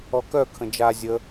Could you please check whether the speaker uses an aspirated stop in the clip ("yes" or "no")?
yes